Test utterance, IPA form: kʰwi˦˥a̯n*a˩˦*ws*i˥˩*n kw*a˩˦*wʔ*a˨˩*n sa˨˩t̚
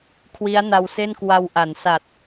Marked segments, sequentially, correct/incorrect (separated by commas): incorrect, incorrect, incorrect, incorrect